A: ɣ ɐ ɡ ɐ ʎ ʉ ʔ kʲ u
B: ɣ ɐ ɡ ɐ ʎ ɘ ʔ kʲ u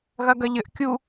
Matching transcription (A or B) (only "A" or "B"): B